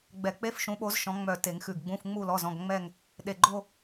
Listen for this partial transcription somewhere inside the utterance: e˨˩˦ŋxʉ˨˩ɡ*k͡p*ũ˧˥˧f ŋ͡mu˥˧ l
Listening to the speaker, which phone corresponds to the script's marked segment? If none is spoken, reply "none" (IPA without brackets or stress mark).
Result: ɡ͡b